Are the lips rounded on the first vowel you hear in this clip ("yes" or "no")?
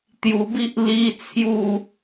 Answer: yes